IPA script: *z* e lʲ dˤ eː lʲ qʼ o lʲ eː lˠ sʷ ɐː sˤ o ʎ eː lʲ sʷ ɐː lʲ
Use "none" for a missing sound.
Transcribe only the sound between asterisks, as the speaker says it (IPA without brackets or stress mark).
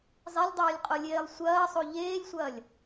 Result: zˤ